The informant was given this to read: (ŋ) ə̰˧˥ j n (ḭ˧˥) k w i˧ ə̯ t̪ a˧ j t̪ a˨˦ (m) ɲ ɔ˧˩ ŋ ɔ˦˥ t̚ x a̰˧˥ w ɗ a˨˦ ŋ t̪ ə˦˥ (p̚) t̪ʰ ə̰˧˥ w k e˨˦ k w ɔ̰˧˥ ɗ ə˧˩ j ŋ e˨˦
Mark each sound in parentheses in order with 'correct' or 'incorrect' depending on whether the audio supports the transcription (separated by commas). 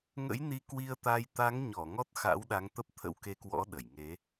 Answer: correct, incorrect, incorrect, correct